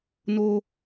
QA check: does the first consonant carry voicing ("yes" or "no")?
yes